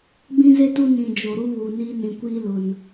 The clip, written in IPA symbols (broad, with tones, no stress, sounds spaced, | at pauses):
ɡ͡b ĩ˦ z e˦ t u˦ n ĩ˨ d͡ʒ o˨ ɾ u˦ β uː˨ n iː˦ n ĩ˨ kʷ iː˦ l ʊ˨ n